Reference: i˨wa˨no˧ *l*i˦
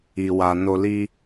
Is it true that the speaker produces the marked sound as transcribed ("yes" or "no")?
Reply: yes